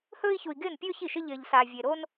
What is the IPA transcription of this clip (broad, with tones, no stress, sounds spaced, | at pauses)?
h ɵː˥ i̯ ç u˧ i̯ ɡ ɪː˥˧ n pʲ ɵː˥ ç i˥˩ ʃ ɪ˥ ʎ ɪː˧ ʎ s a˧ vʲ e˧ ɾ o˥ n